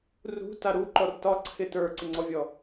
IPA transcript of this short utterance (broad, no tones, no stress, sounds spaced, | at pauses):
r ṳ t a ɾ u ǃ ɔ r t ɒ ǀʰ ɪ t ə˞ ǀ ɪ ŋ͡ǀ ɔ vʲ ɔ